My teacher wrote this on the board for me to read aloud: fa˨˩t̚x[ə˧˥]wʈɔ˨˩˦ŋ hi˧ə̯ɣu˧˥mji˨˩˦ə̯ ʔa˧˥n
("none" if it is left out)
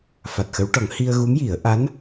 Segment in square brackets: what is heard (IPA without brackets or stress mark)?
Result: ə˧˥